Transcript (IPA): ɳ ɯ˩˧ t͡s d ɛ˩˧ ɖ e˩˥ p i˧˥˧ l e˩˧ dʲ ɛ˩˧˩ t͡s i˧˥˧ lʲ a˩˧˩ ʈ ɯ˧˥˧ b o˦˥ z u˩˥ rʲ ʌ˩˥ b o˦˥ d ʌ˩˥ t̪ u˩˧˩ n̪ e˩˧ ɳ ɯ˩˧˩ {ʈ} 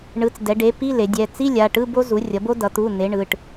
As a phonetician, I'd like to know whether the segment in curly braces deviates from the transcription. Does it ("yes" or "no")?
no